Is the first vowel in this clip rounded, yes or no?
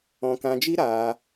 yes